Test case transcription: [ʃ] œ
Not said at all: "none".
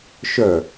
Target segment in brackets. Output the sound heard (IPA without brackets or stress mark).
ʃ